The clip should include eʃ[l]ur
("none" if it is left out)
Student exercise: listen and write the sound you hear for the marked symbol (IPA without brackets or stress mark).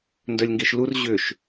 l